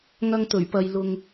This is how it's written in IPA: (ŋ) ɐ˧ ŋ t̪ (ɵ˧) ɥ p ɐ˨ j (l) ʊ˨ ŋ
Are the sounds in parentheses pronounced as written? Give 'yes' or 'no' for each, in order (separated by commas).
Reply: yes, no, yes